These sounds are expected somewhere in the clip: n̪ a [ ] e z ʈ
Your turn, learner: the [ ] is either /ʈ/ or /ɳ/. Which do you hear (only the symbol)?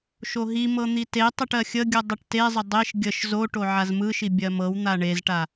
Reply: ɳ